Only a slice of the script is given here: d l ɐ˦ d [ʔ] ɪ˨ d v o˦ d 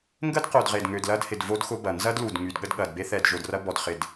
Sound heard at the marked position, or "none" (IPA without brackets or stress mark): h